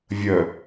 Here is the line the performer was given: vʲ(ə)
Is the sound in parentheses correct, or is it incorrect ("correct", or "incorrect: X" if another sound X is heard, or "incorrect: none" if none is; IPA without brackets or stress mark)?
correct